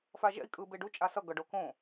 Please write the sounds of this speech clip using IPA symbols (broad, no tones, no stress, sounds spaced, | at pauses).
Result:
f a ʒ ɛ̰ i̯ kʼ ɯ b e ɖ u t͡ʃʼ a s ʌ ɡ ʌ ɖ o k õ